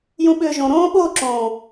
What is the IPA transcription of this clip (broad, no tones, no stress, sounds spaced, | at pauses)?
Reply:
j ũ ɓ ʏː ʒ õ ɾ õː ɓ o ǁ õː